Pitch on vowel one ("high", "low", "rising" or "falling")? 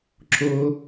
high